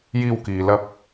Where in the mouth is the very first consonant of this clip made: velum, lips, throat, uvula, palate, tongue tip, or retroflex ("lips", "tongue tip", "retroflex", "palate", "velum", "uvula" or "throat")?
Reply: palate